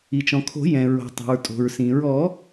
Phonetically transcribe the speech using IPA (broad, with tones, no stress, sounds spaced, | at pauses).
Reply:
i˩ t͡ʃ ɔ̃˩ kʰ o̤˨˩˦ j ɛ̃˩ ɹ o̤˩ tˤ o̤˩ ɹ tʼ o̤˩ ɹ s ĩ˩ ɹ ɔ˨˩˦